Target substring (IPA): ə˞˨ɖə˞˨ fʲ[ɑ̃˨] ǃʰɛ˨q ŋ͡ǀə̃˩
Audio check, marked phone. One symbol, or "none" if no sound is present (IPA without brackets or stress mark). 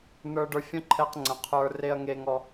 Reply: ə̃˨